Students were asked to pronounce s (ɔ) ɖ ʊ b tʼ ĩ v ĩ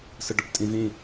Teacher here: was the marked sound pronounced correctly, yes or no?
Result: no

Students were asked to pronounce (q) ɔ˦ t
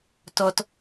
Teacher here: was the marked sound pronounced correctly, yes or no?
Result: no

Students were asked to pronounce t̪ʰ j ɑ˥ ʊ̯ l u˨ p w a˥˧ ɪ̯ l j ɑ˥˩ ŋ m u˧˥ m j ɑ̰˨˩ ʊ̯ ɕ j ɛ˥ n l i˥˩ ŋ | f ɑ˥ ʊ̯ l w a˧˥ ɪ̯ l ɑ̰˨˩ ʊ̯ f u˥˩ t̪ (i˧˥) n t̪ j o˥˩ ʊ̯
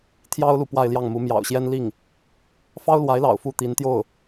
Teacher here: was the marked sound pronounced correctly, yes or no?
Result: yes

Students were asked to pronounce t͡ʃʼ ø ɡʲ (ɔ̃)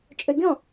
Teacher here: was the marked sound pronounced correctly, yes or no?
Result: yes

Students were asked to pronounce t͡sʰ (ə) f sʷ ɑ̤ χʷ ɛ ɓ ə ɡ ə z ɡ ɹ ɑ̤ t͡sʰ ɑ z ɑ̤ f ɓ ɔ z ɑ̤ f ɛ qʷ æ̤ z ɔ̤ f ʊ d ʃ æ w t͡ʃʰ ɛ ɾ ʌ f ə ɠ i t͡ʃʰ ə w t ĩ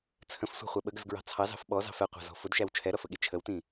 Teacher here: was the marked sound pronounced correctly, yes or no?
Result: no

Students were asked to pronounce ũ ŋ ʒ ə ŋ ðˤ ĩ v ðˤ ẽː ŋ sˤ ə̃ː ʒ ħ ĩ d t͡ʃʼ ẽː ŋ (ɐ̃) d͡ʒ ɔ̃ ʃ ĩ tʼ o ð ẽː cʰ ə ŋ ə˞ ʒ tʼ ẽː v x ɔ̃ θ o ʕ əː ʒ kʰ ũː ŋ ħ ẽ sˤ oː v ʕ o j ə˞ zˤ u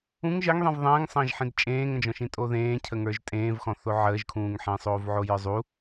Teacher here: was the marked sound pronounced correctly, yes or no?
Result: no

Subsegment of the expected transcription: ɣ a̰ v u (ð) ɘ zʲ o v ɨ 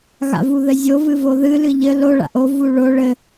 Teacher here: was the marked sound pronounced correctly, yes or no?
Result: yes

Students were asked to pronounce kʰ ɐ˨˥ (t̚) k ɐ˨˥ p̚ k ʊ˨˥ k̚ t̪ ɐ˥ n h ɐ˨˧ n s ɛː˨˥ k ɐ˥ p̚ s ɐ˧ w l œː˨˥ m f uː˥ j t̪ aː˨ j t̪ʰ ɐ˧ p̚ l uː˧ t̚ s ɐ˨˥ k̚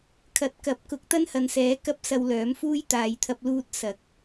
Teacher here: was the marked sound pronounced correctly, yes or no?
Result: yes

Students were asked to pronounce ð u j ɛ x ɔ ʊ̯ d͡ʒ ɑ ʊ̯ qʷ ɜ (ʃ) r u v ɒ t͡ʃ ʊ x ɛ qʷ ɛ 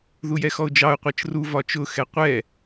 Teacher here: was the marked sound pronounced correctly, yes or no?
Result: no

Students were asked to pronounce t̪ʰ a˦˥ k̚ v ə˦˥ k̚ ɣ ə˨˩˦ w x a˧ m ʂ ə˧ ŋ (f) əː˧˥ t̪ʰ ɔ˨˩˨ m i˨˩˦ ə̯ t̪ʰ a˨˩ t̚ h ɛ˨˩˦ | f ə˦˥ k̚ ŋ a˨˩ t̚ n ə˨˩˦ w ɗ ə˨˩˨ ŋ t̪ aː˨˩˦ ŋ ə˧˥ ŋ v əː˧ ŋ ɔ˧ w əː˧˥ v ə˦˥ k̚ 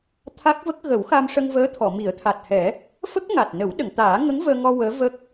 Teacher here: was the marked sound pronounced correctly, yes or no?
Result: no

